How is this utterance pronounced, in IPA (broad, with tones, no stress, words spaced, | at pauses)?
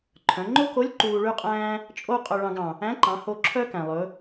ǃʰœ̃˩˧ ŋ͡ǃo˥ko˧˥lʲ ǃuː˧ɭy˥qʼæ̃ː˥ | t͡ʃʼo˥ qʼɵ˧ɭɑ̃˧ɡɑ̃˩ | æ̃˧˥ǃɑ̃˩˧ho˧ ǁʰœ˥kæ̃˩ lˠɵ˩˧